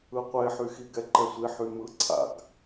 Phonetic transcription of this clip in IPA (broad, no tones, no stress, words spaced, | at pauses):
ɯqʷeħyxi ɡɛǃɛsʷi ħymɯǀʰa̰ɡ